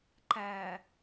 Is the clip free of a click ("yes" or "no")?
no